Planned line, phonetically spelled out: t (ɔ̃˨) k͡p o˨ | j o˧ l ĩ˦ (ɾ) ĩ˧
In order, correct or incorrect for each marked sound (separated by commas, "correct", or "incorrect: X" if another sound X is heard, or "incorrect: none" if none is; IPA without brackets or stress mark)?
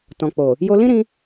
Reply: correct, correct